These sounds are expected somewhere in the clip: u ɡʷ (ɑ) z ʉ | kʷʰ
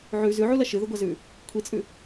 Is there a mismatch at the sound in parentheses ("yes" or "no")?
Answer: yes